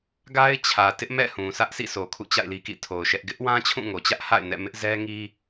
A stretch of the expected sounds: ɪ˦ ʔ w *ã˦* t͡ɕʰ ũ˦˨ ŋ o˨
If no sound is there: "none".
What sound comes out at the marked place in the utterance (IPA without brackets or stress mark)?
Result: ã˦